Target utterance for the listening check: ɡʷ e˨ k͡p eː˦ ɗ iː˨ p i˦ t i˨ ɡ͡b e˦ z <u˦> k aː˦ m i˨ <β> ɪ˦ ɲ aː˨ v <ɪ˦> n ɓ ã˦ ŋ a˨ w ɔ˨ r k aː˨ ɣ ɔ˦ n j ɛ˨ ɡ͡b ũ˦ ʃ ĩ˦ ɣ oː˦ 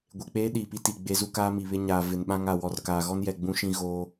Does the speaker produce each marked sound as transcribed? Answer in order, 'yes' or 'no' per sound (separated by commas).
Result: yes, yes, no